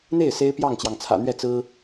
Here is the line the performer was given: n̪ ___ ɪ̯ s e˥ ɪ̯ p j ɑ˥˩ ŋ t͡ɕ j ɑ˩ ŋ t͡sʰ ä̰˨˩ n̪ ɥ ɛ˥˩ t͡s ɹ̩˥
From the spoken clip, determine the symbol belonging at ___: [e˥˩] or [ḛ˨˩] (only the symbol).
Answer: e˥˩